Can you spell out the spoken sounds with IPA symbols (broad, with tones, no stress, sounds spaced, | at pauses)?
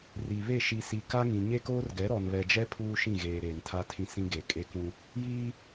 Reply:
r i˨ β e˦˨ ʃ i˨ s i˨ k a˦ ŋ ĩ˨ ɲ e˦ k oː˦ r ɡ ɛ˨˦ ɾ ɔ˨ n β ɛ˨ d͡ʒ ɛ˦ pʰ uː˦ ʃ ĩ˦˨ ɣ eː˨ ɾ eː˨ n tʰ a˦ tʰ ĩ˦ s ĩ˦ ɡ e˨ kʼ e˦ k ũ˦ | j iː˦